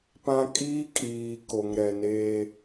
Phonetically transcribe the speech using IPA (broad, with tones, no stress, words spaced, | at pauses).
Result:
pã˦ kʼiː˦kʼiː˨ ko˨ŋɾɛ˨neː˦